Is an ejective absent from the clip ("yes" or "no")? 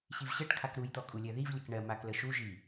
no